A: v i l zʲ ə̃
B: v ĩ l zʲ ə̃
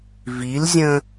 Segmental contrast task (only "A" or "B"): A